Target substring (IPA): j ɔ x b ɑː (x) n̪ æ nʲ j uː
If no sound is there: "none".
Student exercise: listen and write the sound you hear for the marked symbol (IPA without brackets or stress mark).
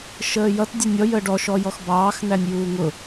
x